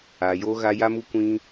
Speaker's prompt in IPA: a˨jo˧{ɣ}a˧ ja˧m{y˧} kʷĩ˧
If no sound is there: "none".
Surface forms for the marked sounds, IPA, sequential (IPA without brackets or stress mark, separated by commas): ɣ, u˧